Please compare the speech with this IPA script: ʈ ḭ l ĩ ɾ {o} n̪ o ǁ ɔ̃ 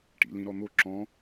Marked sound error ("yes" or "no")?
yes